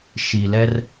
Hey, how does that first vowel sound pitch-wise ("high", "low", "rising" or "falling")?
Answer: low